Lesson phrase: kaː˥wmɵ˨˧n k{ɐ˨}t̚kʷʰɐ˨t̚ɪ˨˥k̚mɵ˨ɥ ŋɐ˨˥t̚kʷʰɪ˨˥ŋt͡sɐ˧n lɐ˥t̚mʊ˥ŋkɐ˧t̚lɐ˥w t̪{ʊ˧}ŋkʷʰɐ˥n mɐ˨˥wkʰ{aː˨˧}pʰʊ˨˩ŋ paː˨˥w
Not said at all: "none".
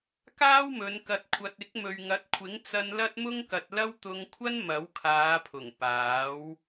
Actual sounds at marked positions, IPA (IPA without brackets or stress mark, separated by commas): ɐ˨, ʊ˧, aː˨˧